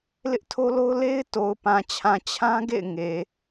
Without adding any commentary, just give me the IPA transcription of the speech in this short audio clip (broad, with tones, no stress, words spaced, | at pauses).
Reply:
lɪ˦ʔtʰo˦lo˦ʊ̯ le˦ɪ̯ to˨ʊ̯pã˨t͡ɕʰã˨ t͡ɕʰã˦ɡḛ˦˨ɪ̯ ŋe˨